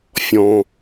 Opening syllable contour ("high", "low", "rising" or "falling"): low